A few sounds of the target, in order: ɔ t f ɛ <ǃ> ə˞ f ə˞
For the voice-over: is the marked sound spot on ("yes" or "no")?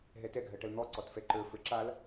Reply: yes